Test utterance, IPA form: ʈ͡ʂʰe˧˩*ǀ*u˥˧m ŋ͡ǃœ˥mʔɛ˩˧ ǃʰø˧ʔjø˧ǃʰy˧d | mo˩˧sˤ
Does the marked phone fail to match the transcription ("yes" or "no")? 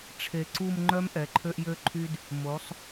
no